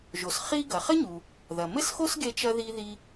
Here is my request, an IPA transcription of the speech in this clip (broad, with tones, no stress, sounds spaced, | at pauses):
ʒ o˩ s χ i˧ ɡ ɐ˩ χ ɘ˥ ɲ u˩ | ð ɐ˩ m ɘ˥ s x o˥ s ɡ e˧ t͡ʃ ɐ˧ ð i˧ ð i˧